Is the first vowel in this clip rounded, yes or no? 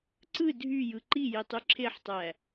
no